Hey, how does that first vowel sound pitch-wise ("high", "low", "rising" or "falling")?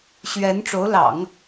rising